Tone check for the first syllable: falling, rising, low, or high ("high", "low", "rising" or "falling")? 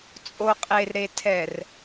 low